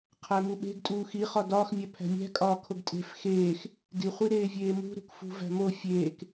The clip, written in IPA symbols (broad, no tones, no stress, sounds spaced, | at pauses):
qʰ æ m u ɓ e̤ ɡ tʼ uː x i χ ɒ d ɒː x mʲ æ pʰ æ̤ mʲ æ̤ kʼ ɒː kʰ o ɡ tʼ e̤ f x eː x | d i χʷ i ɾ eː vʲ eː m ṳ ɾ ṳ k f ṳ v æ̤ m o fʲ eː k